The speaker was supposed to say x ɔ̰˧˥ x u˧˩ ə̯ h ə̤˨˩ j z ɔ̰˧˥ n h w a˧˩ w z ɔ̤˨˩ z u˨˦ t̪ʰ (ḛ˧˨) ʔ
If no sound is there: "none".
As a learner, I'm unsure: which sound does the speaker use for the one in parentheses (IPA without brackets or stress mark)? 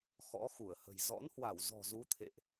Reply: ḛ˧˨